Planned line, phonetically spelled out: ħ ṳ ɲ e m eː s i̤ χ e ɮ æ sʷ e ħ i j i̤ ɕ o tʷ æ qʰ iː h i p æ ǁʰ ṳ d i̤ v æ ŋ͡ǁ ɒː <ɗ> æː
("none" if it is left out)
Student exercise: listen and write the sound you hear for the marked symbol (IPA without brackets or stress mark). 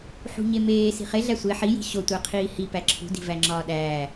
ɗ